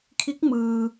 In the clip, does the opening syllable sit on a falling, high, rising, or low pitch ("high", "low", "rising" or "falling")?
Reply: rising